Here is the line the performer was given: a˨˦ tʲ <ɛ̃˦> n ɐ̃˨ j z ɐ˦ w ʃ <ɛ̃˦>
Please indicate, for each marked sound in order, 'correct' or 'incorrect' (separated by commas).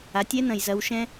incorrect, correct